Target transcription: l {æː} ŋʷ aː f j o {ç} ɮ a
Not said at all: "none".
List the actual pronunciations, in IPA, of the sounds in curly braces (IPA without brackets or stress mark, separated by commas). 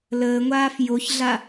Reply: əː, ç